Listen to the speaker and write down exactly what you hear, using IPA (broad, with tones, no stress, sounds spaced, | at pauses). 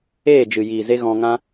eː˦˨ d͡ʒ ɨ˨ j iː˨ z e˦ ɣ ɔ̃˧ ŋ ã˦